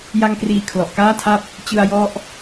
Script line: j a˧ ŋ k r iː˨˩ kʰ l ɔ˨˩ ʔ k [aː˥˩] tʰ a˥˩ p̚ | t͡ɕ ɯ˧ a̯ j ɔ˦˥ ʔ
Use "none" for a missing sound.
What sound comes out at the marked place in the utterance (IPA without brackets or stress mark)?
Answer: aː˥˩